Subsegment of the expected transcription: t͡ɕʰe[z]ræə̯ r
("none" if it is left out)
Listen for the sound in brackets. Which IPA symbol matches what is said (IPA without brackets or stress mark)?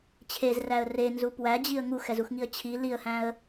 z